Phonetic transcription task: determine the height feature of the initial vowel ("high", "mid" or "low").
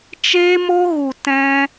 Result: mid